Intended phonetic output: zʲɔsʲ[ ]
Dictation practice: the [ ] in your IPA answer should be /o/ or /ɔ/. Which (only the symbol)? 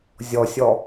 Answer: ɔ